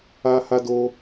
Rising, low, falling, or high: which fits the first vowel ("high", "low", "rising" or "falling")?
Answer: high